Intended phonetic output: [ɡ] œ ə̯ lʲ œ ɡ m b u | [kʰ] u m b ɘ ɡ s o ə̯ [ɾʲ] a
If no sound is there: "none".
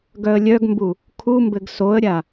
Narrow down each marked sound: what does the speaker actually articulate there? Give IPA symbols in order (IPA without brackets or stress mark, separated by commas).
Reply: ɡ, kʰ, ɾʲ